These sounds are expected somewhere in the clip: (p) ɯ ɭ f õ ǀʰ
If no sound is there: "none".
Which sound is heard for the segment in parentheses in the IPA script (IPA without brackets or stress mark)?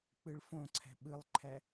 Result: k͡p